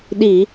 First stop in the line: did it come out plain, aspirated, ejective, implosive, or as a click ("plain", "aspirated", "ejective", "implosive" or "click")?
implosive